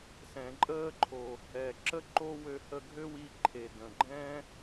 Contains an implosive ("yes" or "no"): no